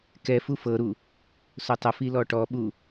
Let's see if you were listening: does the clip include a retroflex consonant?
yes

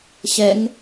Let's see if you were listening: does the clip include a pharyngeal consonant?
no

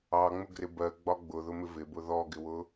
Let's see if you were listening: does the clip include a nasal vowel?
no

